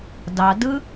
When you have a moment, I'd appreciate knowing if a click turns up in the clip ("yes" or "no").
no